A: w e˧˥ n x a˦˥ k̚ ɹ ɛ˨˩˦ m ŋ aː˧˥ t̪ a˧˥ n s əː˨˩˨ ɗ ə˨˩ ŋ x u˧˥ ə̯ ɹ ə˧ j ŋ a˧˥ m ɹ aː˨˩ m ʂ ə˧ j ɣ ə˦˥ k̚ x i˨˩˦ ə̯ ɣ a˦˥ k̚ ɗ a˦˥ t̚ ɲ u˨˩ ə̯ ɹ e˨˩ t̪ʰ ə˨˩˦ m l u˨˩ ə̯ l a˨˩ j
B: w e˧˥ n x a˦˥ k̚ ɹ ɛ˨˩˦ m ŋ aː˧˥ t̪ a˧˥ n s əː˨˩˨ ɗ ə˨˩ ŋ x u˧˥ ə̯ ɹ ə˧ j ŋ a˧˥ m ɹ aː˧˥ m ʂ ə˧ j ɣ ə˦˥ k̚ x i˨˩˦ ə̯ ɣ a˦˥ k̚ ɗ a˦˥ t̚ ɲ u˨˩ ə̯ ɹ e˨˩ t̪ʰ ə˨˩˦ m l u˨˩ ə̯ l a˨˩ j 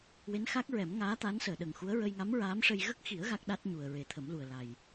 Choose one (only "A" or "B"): B